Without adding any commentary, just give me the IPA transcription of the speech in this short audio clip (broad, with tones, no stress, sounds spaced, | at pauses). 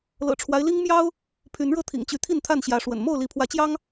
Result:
l ɤ̰˨˩ ʈ͡ʂʰ w a˦ ɪ̯ l i˦ ŋ m j ɑ˦ ʊ̯ | pʰ y˨˦ n ɻ ɤ˥˨ t̪ʰ ḭ˨˩ ŋ t͡ɕ y˨˦ t̪ʰ i˥˨ n t̪ʰ a˥˨ n ɕ j ä˨˦ ʂ w ə̰˨˩ n m o˥˨ ʊ̯ l i˨˦ pʰ w ä˨˦ t͡ɕ j ɑ˦ ŋ